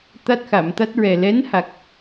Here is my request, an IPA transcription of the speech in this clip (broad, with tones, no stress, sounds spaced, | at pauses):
t̪ a˦˥ t̚ x a˨˩˨ m t̪ a˦˥ t̚ ɹ ɛ˨˩ l ɛ˧˥ n h a˨˩ k̚